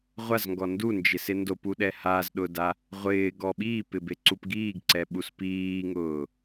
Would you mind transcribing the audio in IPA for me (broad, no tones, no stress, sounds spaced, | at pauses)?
ʁʷ a z ŋ ɡ ɔ n d u n d͡ʒ ɪ s ɪ n d o p u ɗ ɛ h a z ɗ ʊ d a | ʁʷ ɪː ɡ ɔ ɓ iː p ɪ b e ǀ u p ɡ iː ɡ ǀ ɛ ɓ u s p iː ŋ ʊː